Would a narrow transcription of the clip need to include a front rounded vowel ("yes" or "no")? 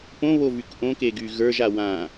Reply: yes